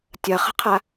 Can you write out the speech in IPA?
tʲ ɐ χ ə̤ qʰ a

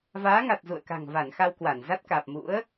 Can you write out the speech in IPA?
v aː˨˦ ŋ a˨˩ t̚ z ṵ˧˨ ə̯ k a̤˨˩ ŋ v a˧˩ n x a˧ w k w a˧˩ n z a˦˥ t̚ k aː˨˩ p̚ m ṵ˧˥ ə̯

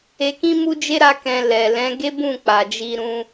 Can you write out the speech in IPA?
e˧ k ĩ˦ m u˦ d͡ʒ e˦ ɾ a˦ k ɛ̃˧ l ɛ˨ l ɛ̃˨˦ ɡ e˦ b ũ˦˨ k͡p a˨ d͡ʒ i˧ ɾ ũ˧

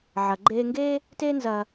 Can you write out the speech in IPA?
ʕ ɐ˩ ɡ͡ǃ eː˧ ŋ ɡ eː˥ | t e˥ n z ɐ˧

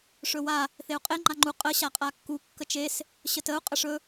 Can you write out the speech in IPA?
ʂ ɵ w a | θ e u̯ qʼ e ŋ͡ǃ a ŋ͡ǃ u qʼ ə ɕ a qʼ a kː u kː ə t͡ʃ e s | ɕ ə t ə u̯ qʼ ə ʂ ɵ

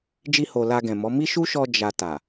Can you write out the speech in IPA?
d͡ʒ i˧ h o˨ l a˧ ɡ ɛ̃˨ m ɔ˨˦ m i˦ ʃ u˦ ʃ ɔ˧ d͡ʒ a˨ t a˨

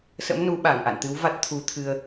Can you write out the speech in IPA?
s ə̰˧˥ m n u˨˦ ɓ a˧˩ ŋ ʔ a̰˧˨ n t̪ ɨ˨˦ w v a˦˥ t̚ t̪ʰ u˨˦ t̪ʰ ɨ˧ ə̯

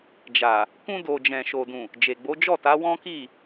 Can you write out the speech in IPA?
d͡ʒ a˨ | k ũ˧ d o˨ d͡ʒ ɛ̃˨ ʃ o˨ d ũ˨ | d͡ʒ e˨ ɡ͡b o˨˦ d͡ʒ ɔ˦˨ t a˨˦ w ɔ̃˦ k i˦˨

